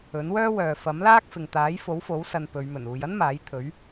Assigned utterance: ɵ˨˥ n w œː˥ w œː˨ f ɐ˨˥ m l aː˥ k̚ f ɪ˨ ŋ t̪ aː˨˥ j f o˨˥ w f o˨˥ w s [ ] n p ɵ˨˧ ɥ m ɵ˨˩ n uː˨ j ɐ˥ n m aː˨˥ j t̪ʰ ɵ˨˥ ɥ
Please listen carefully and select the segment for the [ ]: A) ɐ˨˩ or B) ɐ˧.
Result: B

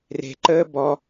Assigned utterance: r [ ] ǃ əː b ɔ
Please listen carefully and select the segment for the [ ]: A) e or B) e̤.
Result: B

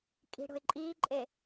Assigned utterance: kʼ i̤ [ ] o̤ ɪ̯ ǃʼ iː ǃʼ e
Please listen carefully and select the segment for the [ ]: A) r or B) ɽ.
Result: B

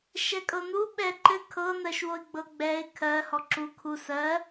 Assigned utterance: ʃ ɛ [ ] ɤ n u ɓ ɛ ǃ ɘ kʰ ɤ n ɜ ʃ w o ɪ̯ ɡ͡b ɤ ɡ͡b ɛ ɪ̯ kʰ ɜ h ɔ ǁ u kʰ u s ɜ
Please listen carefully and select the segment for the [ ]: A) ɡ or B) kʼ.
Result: B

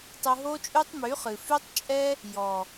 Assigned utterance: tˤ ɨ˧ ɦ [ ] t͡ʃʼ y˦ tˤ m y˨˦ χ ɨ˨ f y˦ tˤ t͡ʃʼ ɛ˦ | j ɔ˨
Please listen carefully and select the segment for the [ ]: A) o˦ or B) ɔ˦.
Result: A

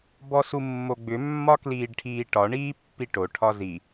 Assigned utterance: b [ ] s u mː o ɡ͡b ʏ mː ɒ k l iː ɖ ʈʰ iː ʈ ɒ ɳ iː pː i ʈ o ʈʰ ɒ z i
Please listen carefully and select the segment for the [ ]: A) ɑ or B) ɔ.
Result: B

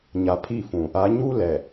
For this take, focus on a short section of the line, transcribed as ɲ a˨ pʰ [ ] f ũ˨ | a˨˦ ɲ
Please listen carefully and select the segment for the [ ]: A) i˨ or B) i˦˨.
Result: B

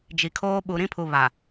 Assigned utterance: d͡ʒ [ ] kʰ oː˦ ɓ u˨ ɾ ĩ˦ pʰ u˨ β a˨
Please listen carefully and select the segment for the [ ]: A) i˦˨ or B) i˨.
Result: B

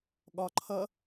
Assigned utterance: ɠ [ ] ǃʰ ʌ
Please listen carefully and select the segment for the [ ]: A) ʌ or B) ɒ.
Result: B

